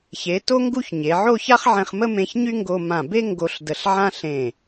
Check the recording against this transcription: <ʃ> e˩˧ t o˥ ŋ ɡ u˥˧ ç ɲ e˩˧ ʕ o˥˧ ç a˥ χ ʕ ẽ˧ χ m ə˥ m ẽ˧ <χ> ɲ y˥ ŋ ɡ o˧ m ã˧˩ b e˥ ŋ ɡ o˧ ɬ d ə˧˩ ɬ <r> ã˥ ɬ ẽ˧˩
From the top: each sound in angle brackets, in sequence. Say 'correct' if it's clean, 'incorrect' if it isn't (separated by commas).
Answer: incorrect, incorrect, incorrect